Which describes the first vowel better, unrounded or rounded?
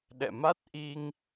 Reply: unrounded